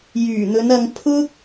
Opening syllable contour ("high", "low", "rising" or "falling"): low